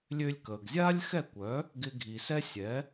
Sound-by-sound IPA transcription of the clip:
lʲ ø˧ lʲ k əː˩ ɡ zʲ aː˥ lʲ x ɛ˥˩ kʷ œ˩˥ | ɡ ɪ˧ ɡʱ i˩ s ɛ˥ sʲ ɛ˩˥

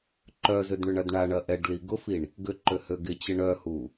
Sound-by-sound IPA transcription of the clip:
ǃ œ z ʏ d ɳ ʏ ɳ ɐ d ɳ a ɳ ɐ ʔ ɛ ɖ l i ɡ ʊ f i ɳ | ɡ ʏ ǃ ø h ø ɡ ɪ t͡ɕ ɪ ɳ œ h u

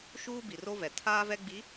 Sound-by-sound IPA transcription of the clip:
ʃ uː˦ b i˨ r o˦ v ɛ˨ tʰ aː˦ v ɛ˦ ɡ͡b i˨˦

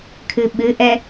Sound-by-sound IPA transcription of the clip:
kʰ ɨ ɓ ɨ ʔ ɛ

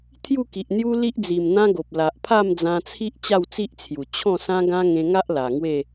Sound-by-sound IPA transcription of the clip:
t̪ʰ j u˥˧ k i˨ ʔ n̪ j u˦ l i˦ ʔ d͡z i˨˩ m n̪ ã˦ ɡ o˨ p̚ l a˨ ʔ pʰ a˥˧ m d͡z ã˧ t͡sʰ i˦ ʔ t͡ɕ a˥˧ w t͡s i˦ ʔ t͡sʰ j u˨˩ t͡ɕʰ ɔ̃˥˧ s ã˦ ɡ ã˦ ŋ ẽ˧ ŋ a˦ ʔ l a˨˩ ŋ w e˥˧

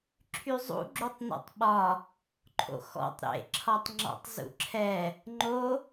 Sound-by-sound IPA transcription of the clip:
ǁʰ y zˤ ṵ ɡ͡ǁ u tˤ n ɔ̰ tˤ ɓ ɒ | ǃʰ o̰ x ɔ̰ tˤ ɾ ḛ ǁʰ ɒ tˤ ŋ͡ǁ ɔ̰ tˤ z ṵ ǁʰ ɛ | ŋ͡ǃ o

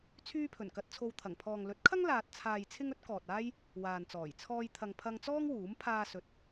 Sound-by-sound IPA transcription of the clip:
t͡sʰ yː˥ pʰ ɵ˨˩ n k ɐ˧ t̚ t͡sʰ o˧ w t̪ʰ ɐ˨˩ ŋ pʰ ɔː˨ ŋ l ɵ˨˥ t̚ kʰ ɐ˥ ŋ l aː˨ t̚ t͡sʰ aː˨ j t͡sʰ ɪ˥ ŋ ɵ˥ t̚ k ɔː˨ t̚ aː˥ j | w aː˨ n t͡s ɔː˨˩ j t͡sʰ ɔː˧ j t̪ʰ ɐ˨ ŋ pʰ ɐ˧ ŋ t͡s ɔː˥ ŋ w uː˨˥ m pʰ aː˧ s ɵ˨ t̚

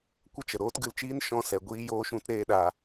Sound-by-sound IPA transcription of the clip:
kʷ ə˦ t͡ʃ ə˨ ɾ oː˦ t ɡ ɨ˧ l t͡ʃ iː˦ n ʃ ɔ̃˧ s ɛ˨ ɡʷ iː˧ j oː˧ ʃ ũ˧ t ɾ eː˦ ɗ a˧

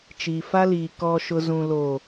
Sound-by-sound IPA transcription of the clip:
t͡ʃ iː˨ f a˦ l iː˨ k ɔ˨ ʃ ʊ˨ z ũ˨ l o˨

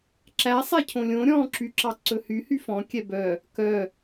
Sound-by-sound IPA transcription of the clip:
ǁ æ sˤ ɛ cʰ õ lʲ õ ɾʲ ɔ̃ ǁ y ǁ ɑ ǀ ɵ h y h y f ɔ̃ kʲ ɛ b œ | k œ

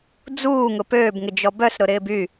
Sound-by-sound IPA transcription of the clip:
d͡z uː ŋ ʊ p øː b ŋ ɪ d͡ʒ ɔ b œ s ɾ ʊ ɾ ɪː b y

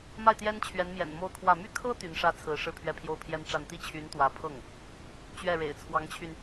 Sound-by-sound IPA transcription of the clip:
m a˥˩ ɪ̯ t̪ j ɛ˥ n t͡ɕʰ ɥ ɛ˧˥ n m j ɛ̰˨˩ n m o˥˧ ʊ̯ kʰ w ä˥˩ m y˥ kʰ ɤ˥ t̪ y˧˥ n ʂ ä˥ t͡sʰ ɹ̩˧˥ ʂ ɻ̩˥˩ pʰ ɥ ɛ˥ pʰ j o˥ ʊ̯ pʰ j ɛ˥ n ʈ͡ʂ a˥˧ n t̪ i˥˩ t͡ɕʰ y˧˥ n t̪ w ä˧˥ pʰ ɤ˥˩ ŋ | t͡ɕ ɥ ɛ˥˩ ɻ ḛ˨˩ ɪ̯ t͡sʰ w ɑ˧˥ ŋ t͡ɕʰ y˧ n

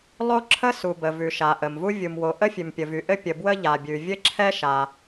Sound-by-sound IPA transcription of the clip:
lˠ o˥ ǁʰ ə˥ s u˩ b ə˩ v ʉ˩ ʃ a˩ ʔ ə˩ m v u˥ vʲ u˩ m w o˩ ʔ ə˥ fʲ ʉ˩ m pʲ ə˩ v y˩ ʔ ɘ˥ pʲ ə˩ b w ə˥ ʎ a˩ bʲ ʉ˩ vʲ ɘ˥ ǁʰ ɛ˥ ʃ a˩

